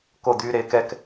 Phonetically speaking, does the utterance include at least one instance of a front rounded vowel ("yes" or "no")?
yes